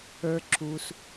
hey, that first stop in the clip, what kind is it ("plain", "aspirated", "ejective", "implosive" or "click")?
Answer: click